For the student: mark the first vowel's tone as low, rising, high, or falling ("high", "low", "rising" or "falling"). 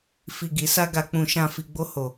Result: low